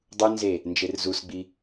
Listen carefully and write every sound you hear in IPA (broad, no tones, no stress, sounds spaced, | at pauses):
dˤ u n z e | n d͡ʒ e r z u s ɡ͡b i